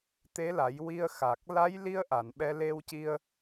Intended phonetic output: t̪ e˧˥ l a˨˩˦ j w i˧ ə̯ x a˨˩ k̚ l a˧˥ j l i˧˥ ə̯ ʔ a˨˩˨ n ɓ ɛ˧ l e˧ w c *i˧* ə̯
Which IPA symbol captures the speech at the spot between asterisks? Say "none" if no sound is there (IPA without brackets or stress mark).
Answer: i˧